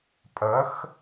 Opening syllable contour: rising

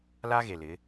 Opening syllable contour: high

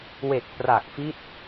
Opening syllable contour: low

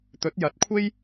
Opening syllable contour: rising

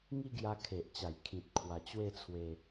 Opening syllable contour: falling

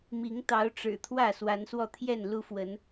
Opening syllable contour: rising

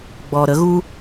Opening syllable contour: low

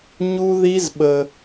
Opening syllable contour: high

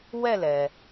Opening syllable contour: falling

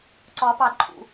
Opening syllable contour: rising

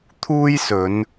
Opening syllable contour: high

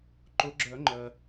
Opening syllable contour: rising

